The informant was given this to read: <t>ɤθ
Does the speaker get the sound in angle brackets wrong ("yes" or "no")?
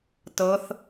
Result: no